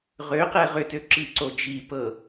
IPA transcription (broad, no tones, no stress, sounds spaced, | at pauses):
ʁ ø q ɛ ʁ ʏ t ø ǁ i ǀ o d͡ʒ i p ɤ